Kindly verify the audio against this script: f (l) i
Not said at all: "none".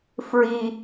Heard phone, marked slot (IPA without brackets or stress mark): ɹ